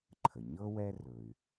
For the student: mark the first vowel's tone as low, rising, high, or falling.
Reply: low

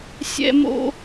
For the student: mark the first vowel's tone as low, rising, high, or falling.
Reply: high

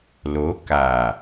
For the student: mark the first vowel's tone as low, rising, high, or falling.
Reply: rising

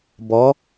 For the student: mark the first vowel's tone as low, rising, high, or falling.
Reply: rising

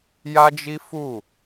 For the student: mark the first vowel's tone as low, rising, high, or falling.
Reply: high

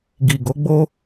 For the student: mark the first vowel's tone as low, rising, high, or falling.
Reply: low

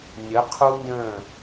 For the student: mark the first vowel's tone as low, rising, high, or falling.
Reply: rising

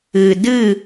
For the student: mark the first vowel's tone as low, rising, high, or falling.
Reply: low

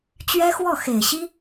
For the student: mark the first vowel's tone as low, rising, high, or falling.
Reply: high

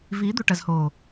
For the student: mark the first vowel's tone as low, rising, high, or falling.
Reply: rising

